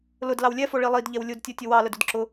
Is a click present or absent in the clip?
present